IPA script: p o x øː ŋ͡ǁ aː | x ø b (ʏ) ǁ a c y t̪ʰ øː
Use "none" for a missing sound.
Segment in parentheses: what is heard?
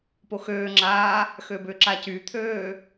ʏ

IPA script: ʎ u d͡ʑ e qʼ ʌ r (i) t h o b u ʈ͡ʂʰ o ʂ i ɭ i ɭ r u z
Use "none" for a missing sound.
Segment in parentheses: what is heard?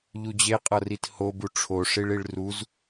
i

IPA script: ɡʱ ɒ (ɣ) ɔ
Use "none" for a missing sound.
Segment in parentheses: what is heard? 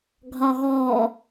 ɣ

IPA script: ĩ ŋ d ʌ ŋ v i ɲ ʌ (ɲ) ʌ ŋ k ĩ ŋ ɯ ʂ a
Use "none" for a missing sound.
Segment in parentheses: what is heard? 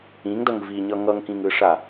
ŋ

